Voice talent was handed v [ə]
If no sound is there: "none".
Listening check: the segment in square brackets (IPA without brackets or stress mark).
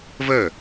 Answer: ə